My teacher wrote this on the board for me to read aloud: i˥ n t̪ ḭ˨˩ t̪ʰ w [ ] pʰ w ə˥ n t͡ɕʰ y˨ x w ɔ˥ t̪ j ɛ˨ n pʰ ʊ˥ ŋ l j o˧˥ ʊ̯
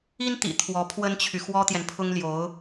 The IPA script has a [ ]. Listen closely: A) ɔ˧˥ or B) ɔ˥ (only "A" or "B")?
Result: A